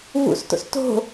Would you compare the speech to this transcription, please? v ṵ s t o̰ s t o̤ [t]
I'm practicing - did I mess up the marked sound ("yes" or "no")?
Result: yes